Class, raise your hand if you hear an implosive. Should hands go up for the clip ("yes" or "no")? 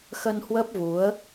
no